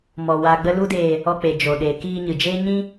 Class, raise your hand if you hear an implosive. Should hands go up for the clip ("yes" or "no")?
yes